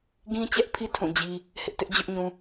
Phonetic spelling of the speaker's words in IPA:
ɡ ĩ˦ t͡ɕ ɛ˦ ʔ pʰ i˦ tʰ ũ˦˨ d͡ʑ i˦ | h ɪ˦ ʔ t ɪ˦ ʔ d͡ʑ ʊ˦ ʔ ɲ ũ˦

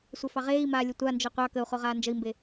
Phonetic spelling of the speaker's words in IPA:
sʷ œ f ɑ ʁ eː i̯ m aː lʲ ə tʷ a n d͡ʒ œ qʷ ɑ k ə u̯ χ o ʁ aː n d͡ʒ ə i̯ m b e

